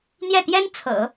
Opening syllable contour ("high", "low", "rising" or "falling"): falling